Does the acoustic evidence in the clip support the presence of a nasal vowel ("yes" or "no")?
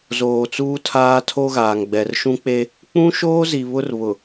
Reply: yes